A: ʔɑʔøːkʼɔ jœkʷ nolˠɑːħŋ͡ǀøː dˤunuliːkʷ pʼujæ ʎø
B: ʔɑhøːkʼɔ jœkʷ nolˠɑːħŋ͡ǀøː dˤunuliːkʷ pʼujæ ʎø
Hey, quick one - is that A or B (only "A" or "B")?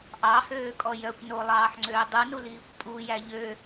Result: B